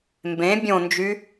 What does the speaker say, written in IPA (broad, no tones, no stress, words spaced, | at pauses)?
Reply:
mbẽ bʲõnd͡ʒy